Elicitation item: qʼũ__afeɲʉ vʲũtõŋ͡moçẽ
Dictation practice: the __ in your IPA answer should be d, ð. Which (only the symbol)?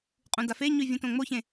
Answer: d